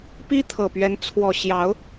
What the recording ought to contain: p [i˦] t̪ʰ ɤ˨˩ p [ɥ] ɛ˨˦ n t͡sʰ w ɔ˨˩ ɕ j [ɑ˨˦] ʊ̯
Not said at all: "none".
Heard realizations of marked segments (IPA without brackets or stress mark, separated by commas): i˦, ɥ, ɑ˨˦